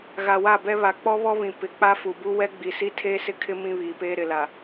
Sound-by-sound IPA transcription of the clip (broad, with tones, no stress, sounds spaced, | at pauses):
ɣ a˨ w a˦˨ b ɛ˦ β a˨ k͡p ɔ˦ β ɔ˦ β ĩ˨ p ɪ˨˦ k͡p a˦ f u˨ b u˦ w ɛ˦ ɡ͡b i˨ s i˦ tʰ eː˦ s ɪ˦ kʰ ɪ˦ m ĩ˦ β iː˨ p eː˦ ɾ ɪ˨ l a˨